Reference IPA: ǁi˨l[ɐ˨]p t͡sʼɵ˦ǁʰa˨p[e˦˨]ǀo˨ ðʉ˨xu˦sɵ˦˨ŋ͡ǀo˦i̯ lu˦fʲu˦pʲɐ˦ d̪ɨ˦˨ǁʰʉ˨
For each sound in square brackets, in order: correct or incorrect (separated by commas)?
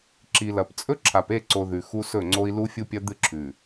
correct, correct